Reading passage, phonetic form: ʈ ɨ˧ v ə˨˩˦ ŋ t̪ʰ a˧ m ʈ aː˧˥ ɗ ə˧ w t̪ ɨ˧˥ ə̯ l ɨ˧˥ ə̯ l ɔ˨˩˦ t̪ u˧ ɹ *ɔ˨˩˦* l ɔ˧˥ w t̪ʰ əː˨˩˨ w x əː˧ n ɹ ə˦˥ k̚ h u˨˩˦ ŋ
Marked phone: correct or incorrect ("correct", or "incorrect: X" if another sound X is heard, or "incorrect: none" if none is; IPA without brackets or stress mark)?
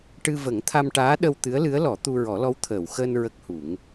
correct